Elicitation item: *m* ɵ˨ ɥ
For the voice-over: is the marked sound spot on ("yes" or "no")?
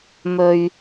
yes